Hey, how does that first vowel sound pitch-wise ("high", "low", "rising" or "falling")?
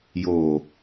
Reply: low